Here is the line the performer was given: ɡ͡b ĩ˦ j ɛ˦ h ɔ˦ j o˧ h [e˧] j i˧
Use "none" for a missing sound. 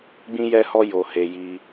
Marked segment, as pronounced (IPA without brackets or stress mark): e˧